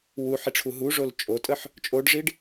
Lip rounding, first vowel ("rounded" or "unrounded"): rounded